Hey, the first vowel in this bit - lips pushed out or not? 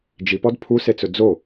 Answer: no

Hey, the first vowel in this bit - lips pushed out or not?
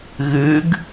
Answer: no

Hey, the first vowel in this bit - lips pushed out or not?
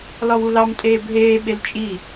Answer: yes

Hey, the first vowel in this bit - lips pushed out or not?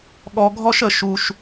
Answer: yes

